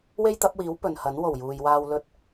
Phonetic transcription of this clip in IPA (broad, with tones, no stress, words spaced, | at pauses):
we˥jt̪ɐ˨˥p̚wiː˨˥w pɵ˨nhɐ˨˥n wo˨˩wjuː˨jwaː˧w lɵ˧t̚